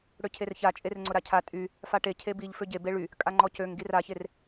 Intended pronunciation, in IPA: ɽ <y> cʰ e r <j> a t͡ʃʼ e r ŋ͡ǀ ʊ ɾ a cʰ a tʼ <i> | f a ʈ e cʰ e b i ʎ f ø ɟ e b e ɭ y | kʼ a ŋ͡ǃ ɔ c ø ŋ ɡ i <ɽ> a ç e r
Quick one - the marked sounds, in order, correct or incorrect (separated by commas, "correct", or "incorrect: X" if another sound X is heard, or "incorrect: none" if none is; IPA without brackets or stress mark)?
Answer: incorrect: ø, incorrect: ç, incorrect: y, incorrect: r